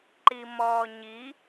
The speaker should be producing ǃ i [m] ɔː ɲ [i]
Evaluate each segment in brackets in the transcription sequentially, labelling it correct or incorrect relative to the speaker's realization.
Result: correct, correct

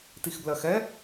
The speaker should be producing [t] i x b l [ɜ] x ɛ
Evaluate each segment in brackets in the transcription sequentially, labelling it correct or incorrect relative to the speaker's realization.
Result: correct, correct

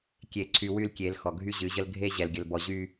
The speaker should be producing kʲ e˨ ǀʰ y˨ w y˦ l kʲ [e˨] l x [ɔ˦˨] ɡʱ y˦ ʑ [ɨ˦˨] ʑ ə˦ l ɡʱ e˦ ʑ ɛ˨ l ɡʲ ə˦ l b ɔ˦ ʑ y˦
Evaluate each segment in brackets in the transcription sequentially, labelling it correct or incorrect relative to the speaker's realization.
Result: incorrect: e˨˦, incorrect: ɔ˨, incorrect: ɨ˨˦

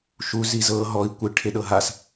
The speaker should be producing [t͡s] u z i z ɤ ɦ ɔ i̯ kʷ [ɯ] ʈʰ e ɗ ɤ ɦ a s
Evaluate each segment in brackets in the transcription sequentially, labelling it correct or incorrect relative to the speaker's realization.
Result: incorrect: ʃ, correct

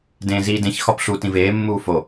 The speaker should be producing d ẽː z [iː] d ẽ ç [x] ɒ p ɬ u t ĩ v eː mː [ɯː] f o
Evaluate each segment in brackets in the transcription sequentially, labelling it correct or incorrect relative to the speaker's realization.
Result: correct, correct, incorrect: uː

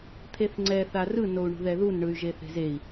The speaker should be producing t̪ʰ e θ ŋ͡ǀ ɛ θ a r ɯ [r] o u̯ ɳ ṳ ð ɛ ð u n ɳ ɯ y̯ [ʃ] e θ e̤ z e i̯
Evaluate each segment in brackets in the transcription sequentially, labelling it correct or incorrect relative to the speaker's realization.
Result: incorrect: n, incorrect: ʒ

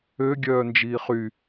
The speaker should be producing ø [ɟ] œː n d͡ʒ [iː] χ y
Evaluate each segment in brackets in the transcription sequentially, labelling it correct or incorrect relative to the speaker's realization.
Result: incorrect: ɡʲ, correct

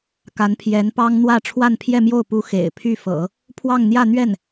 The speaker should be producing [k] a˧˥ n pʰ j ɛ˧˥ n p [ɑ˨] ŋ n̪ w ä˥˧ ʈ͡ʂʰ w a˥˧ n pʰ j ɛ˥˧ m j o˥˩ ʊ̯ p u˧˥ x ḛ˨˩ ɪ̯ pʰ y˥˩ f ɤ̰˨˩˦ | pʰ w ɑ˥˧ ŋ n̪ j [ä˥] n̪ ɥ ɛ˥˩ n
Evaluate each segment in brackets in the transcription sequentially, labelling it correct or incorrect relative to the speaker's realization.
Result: correct, incorrect: ɑ˥, incorrect: ä˥˧

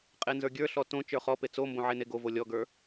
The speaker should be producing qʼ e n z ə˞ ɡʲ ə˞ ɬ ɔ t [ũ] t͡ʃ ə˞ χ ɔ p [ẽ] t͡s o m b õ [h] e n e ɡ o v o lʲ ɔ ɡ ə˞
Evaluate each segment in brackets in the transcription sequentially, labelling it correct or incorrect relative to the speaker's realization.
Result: incorrect: õ, incorrect: e, incorrect: ʕ

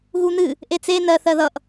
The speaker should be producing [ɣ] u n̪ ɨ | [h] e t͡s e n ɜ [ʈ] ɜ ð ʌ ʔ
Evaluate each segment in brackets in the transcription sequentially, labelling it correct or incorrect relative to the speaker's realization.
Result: correct, incorrect: ʔ, incorrect: θ

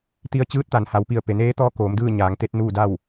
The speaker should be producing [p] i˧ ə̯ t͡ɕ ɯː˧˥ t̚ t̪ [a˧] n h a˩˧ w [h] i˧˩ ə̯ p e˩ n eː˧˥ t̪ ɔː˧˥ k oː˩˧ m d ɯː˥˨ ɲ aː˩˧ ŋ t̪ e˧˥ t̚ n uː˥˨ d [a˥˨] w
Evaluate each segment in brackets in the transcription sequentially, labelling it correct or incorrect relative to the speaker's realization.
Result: incorrect: t̪, incorrect: a˩, incorrect: p, correct

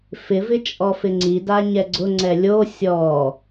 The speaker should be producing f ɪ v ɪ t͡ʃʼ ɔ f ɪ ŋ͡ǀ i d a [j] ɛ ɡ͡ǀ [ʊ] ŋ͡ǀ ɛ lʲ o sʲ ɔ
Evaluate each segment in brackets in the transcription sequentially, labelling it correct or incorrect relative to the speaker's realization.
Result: incorrect: ɲ, correct

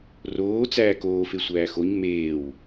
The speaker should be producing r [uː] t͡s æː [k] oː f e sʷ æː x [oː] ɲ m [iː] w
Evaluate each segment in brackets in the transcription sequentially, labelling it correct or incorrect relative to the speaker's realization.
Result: incorrect: oː, correct, incorrect: o, incorrect: eː

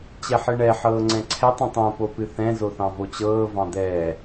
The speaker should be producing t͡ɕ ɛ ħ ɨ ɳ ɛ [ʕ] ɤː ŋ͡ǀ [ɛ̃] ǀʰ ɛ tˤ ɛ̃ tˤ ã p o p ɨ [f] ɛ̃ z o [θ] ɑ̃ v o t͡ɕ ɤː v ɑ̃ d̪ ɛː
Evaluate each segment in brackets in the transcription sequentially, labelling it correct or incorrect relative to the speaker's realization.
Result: incorrect: ħ, correct, incorrect: θ, correct

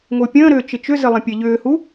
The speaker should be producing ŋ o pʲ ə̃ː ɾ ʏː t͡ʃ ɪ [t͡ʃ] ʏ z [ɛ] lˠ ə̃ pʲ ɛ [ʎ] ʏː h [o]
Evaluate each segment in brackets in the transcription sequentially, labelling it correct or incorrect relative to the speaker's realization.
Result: correct, incorrect: ɪ, correct, incorrect: u

